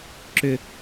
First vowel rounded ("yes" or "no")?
yes